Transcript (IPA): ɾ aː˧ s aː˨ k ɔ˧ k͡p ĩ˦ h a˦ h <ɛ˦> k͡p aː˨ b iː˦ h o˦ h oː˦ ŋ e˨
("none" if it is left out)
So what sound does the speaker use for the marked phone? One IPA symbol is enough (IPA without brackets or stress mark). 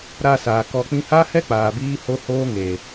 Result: ɛ˦